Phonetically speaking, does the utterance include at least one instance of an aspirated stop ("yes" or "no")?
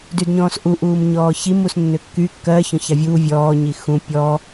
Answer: no